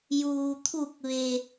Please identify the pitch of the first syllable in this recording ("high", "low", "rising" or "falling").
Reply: low